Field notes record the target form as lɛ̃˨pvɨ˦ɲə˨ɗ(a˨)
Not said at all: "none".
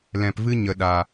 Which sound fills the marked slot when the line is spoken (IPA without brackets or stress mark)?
a˨